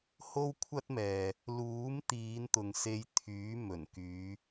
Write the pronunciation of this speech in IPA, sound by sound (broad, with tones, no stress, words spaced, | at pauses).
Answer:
ho˥wkʷʰɐ˥t̚mɛː˨ | luː˨˥mt̪iː˨˧nt̪ʊ˨ŋ se˧jt̪ʰyː˨˥mɵ˨˩nkyː˨˧